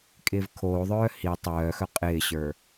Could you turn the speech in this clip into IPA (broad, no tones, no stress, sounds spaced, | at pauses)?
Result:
kʼ ɪː v kʰ oː ðˤ œː h i tˤ œː x œ qʼ ɪː ɕ ə˞